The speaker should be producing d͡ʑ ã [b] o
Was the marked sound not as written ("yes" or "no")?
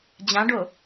yes